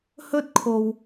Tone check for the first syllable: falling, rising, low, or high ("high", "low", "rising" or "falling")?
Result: high